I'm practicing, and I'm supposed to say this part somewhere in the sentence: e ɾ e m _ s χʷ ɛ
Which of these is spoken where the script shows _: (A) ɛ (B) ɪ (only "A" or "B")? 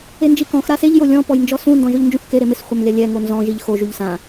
B